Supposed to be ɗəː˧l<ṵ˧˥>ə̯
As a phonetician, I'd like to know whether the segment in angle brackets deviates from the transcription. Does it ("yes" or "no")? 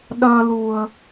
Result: yes